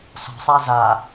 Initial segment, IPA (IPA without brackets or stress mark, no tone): s